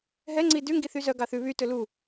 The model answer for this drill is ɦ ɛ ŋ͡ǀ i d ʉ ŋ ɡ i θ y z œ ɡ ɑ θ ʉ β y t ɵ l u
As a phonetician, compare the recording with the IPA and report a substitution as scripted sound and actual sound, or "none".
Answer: none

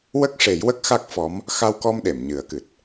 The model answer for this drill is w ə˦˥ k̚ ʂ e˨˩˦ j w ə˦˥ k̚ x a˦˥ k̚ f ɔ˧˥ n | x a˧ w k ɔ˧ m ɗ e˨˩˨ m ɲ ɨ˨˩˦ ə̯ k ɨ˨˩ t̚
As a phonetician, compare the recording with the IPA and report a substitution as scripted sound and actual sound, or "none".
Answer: n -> m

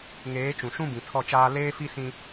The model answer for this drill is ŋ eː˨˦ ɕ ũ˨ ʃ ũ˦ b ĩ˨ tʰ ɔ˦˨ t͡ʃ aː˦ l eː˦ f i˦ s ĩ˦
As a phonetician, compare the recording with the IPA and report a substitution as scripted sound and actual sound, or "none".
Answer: ɕ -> t͡ʃ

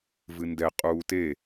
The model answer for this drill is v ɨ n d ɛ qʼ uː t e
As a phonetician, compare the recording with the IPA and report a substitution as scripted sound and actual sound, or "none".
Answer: none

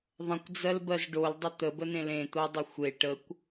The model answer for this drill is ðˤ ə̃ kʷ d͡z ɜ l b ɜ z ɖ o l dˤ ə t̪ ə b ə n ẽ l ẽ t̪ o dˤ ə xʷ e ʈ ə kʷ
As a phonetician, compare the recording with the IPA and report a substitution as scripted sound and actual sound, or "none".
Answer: none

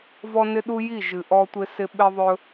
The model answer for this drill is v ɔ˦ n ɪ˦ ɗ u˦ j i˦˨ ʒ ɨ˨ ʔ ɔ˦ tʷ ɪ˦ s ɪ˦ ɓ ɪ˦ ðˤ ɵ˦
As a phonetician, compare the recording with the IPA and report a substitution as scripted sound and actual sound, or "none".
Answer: none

